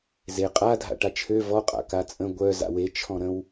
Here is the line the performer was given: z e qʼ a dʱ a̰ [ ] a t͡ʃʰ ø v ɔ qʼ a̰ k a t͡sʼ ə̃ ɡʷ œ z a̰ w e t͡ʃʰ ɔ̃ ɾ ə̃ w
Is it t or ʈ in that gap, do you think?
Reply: ʈ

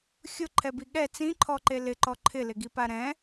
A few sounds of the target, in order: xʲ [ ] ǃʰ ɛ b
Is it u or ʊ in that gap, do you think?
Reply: ʊ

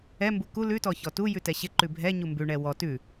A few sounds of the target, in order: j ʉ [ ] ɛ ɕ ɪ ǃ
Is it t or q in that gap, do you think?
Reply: t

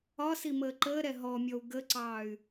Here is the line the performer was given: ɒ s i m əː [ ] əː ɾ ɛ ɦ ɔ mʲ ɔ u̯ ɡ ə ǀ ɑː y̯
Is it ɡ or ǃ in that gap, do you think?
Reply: ǃ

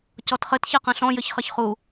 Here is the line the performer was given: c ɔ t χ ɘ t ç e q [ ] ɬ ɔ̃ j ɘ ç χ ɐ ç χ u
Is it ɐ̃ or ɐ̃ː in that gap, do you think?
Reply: ɐ̃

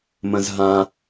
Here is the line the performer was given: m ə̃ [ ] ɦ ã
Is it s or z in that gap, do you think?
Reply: z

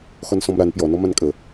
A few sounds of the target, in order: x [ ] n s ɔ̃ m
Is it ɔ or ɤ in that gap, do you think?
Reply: ɔ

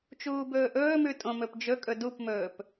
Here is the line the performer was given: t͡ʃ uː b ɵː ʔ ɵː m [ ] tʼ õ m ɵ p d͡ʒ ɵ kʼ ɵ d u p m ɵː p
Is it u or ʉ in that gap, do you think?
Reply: ʉ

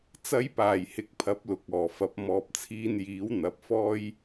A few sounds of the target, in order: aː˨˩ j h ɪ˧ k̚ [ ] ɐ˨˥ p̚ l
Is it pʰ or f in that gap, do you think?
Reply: pʰ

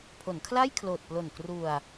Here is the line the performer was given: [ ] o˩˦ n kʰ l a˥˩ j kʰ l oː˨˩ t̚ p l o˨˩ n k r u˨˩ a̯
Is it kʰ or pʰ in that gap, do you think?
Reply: pʰ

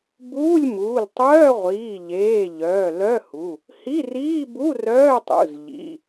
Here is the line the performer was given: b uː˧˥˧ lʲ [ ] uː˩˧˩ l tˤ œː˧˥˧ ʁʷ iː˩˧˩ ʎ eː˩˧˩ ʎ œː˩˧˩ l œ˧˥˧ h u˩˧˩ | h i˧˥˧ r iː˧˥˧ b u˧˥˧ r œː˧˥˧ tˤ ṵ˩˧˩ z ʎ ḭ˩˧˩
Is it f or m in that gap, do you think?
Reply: m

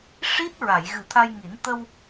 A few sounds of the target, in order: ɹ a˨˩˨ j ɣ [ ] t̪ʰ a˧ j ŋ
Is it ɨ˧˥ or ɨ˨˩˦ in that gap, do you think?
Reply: ɨ˨˩˦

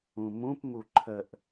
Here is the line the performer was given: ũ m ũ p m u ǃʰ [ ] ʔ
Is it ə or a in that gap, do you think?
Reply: ə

